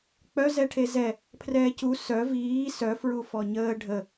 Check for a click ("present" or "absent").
absent